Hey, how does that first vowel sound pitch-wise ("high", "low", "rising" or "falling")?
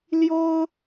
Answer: high